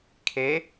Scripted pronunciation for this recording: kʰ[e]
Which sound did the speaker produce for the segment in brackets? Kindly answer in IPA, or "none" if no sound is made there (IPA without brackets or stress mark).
e